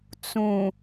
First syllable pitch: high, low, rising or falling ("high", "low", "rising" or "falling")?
low